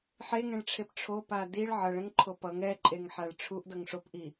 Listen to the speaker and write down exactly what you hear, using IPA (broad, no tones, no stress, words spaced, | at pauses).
ħeŋɛ̃ɭʈ͡ʂʰep ʈ͡ʂʰopa diɭ ʕʌɭɛ̃ŋǃʰo pʌŋ ɛǃʼeŋħaɭ ʈ͡ʂʰuʔdʌŋ ʂopʔi